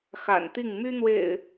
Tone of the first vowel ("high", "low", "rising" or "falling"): low